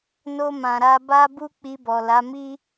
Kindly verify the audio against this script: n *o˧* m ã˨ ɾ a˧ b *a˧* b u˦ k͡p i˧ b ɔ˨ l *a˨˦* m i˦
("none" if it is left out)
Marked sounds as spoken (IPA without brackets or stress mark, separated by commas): o˧, a˦, a˨˦